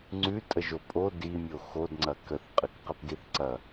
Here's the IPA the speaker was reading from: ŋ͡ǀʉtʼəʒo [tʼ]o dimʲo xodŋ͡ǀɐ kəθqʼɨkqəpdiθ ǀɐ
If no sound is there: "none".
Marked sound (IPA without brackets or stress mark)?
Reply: pʼ